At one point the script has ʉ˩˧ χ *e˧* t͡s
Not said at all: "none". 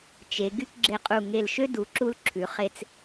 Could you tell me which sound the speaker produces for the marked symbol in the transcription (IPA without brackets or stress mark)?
e˧